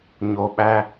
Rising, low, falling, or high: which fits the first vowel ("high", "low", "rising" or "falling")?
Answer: low